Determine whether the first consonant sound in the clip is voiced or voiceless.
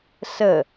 voiceless